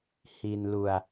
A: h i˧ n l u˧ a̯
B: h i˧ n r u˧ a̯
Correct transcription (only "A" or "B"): A